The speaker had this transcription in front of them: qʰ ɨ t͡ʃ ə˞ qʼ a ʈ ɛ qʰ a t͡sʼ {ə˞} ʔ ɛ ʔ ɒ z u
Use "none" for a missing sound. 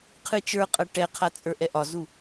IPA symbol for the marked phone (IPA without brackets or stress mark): ə˞